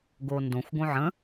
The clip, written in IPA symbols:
ɡondõxʷ ɡõʕə̃

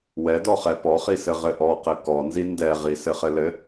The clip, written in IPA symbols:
wɛdɔχɛ pɔχisɘ ʁɘʔɔ qɘkɔnzi ndɛʁi sɘχɘlɘ

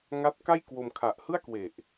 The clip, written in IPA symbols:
ŋa˦˥t̚ka˥˩jkwo˧m kʰa˨˩ʔ hɯ˥˩a̯kwe˨˩ʔ

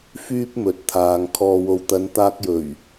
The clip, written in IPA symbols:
fyː˥p̚mɵ˨˥t̚t̪ʰaː˨ŋ kʰɔː˨wo˨wt̪ɐ˨˧n t̪aː˧k̚jɵ˨˩ɥ

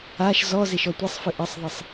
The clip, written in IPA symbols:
aʃ zɔ zeʃɔtʷisˤfɨ ʔɐsˤðˤɘsˤ

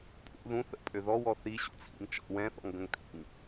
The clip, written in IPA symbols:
pʼṵ ðũ θə̰pʼø ðɔwɔ θiɕṵt͡sʰḭŋ t͡ʃɔ̰ wɛ̃θɔ̰ŋɡə̃ŋ t̪ʰḭŋ

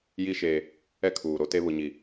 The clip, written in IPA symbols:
ji˦ ʃeː˦ | ɛ˦kʰuː˨ ɾo˦te˦ βʊ˦ɲi˦˨

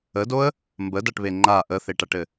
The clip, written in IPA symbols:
ədoə̯ | mbədaʈβe ŋ͡ǃa ʔəθeʈaʈɘ

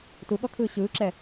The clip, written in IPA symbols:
tuɠɔkʰɯː ɕɯːǁɛ

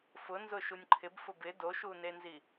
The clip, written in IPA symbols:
fʊ nzʊʃunʲǃʰɪb fʊbɪ doʃunenzi

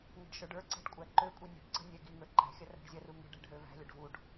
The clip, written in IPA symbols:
ŋə̤ɖʃə˞ɖə˞ǀɛ̤ɖ kʷʼæǃøkʷʼi nʲə̤ɖ ǀə̤nʲɛ ɡiŋə˞ ǃæ̤xʲɐ ræ̤ɖzʲɐru ŋə̤ɖ æ̤ɖɦøvæ̤lʲɐɖ vuɖ

